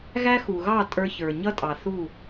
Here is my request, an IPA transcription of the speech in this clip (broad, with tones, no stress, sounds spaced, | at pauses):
ɣ æ˦ x u˨ ɣ ɑ˦˨ tʼ ə˞˧ ç ə˞˨ ɲ ʌ˦ tʼ ɑ˨ θ u˦˨